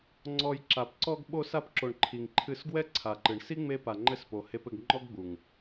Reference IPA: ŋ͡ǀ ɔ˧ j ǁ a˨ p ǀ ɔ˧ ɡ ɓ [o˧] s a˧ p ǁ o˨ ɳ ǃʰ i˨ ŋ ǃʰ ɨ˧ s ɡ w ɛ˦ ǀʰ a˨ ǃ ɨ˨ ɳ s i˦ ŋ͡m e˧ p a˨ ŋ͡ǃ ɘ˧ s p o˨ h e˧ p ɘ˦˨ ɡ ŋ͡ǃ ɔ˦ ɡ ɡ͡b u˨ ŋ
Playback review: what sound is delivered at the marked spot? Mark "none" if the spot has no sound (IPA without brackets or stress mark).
o˧